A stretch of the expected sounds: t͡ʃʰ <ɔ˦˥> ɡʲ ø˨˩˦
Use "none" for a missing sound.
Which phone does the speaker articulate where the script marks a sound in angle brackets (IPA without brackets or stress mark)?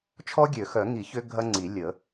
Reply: ɔ˦˥